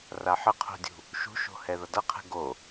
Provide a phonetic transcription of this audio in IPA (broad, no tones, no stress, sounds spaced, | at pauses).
r a ħ ə qʰ o̤ dʲ ṳ | ʃ ṳ ʃ o̤ h ɛ ð ʌ d ʌ qʰ ɛ̤ ɡ o